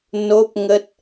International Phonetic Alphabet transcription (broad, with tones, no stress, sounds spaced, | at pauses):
n o˦˥ p̚ ŋ ə˦˥ t̚